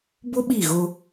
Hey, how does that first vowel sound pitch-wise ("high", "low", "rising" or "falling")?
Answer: high